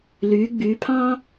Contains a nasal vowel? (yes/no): yes